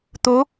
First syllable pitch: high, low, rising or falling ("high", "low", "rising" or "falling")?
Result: rising